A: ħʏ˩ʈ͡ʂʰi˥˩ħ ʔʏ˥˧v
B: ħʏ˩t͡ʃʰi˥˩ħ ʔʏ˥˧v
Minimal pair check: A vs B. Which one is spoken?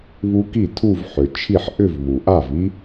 B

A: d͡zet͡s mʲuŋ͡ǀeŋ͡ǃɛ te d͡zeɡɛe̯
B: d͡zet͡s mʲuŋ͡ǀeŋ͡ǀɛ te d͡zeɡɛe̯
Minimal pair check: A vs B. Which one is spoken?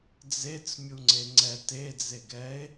B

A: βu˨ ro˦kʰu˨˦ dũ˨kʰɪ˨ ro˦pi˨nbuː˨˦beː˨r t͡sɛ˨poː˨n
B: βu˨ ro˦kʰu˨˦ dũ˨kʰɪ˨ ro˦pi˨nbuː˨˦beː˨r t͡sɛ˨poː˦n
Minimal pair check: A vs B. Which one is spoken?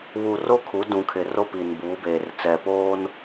B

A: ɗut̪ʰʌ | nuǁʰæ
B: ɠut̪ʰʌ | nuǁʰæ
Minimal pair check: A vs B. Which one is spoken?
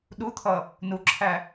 A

